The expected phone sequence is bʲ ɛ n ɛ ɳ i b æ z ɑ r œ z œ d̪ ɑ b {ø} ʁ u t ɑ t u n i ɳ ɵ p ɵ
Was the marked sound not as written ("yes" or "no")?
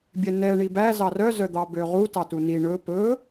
no